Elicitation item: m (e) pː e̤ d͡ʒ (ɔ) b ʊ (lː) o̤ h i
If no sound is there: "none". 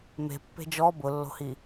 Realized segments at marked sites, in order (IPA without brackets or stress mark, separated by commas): e̤, ɔ, lː